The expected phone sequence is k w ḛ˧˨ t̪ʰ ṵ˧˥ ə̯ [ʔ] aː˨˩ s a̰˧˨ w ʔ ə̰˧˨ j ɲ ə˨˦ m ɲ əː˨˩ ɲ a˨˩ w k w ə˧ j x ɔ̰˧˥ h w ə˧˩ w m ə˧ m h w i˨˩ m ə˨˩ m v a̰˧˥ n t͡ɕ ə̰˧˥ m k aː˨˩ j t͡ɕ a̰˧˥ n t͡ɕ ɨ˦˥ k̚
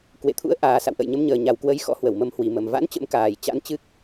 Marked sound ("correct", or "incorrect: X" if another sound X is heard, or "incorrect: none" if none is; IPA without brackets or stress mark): correct